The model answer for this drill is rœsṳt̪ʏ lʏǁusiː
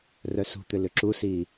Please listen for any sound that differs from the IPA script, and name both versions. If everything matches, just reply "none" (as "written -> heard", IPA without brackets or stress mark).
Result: none